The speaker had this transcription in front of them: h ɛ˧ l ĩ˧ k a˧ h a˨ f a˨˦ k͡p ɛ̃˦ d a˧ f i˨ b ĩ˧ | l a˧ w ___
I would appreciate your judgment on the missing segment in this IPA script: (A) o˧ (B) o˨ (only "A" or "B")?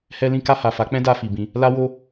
A